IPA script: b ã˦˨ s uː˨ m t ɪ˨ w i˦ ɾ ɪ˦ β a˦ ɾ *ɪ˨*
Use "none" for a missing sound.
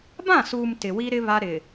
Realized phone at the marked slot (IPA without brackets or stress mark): ɪ˨